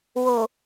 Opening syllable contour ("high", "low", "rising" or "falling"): low